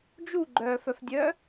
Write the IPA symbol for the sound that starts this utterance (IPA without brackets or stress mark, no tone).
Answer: d͡ʒ